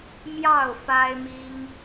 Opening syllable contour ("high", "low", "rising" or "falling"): falling